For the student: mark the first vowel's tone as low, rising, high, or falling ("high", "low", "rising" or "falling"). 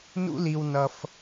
high